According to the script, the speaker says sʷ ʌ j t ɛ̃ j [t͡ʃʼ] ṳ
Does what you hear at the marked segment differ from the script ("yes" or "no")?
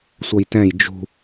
yes